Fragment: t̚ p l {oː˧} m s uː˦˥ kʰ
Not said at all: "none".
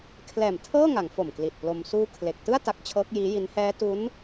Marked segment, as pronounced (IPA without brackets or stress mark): o˧